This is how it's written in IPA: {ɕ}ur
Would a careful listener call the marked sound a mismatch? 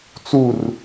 yes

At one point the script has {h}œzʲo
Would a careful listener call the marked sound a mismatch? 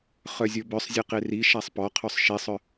yes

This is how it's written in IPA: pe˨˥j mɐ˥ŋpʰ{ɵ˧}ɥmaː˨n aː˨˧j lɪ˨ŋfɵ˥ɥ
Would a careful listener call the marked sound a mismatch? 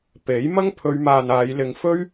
yes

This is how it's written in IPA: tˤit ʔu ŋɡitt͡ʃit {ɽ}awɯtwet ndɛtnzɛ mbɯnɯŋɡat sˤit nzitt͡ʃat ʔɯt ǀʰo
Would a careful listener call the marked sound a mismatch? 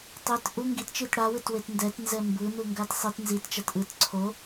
no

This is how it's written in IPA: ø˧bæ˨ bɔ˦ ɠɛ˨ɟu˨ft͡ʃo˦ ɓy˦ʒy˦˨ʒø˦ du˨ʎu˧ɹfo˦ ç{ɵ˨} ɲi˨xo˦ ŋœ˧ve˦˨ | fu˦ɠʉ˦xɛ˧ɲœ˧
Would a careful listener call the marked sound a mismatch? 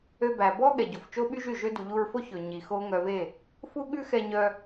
no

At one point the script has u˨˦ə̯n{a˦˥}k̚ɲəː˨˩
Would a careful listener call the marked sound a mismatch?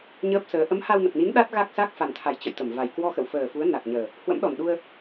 yes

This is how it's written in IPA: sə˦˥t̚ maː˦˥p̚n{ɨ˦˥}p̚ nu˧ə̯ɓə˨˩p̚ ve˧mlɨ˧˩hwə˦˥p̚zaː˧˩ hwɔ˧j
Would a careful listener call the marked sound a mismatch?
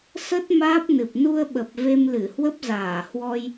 yes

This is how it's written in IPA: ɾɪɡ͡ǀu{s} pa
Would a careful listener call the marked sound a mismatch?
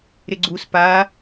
no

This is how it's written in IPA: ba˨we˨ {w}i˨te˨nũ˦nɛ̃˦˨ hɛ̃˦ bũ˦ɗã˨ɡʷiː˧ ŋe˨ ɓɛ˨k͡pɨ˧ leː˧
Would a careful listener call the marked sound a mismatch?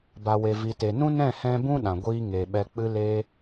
yes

